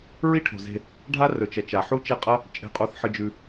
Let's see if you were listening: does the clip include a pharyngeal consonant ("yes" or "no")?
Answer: yes